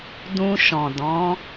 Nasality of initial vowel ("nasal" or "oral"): nasal